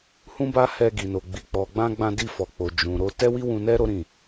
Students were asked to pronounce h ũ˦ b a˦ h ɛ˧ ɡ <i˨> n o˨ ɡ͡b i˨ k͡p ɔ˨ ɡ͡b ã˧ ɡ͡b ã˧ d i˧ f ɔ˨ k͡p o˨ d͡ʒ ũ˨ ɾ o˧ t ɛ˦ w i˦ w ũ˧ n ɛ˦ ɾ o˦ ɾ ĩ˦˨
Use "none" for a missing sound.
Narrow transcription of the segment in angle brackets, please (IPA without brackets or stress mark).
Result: i˨